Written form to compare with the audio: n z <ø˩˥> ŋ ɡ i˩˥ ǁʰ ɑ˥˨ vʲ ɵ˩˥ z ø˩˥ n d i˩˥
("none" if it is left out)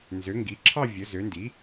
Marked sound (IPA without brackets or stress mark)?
ø˩˥